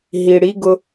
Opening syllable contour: low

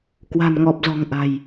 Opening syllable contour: low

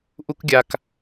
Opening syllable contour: high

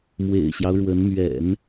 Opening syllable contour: low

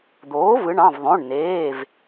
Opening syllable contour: rising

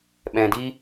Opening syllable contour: low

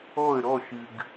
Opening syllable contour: falling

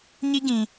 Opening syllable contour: high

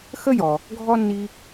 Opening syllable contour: high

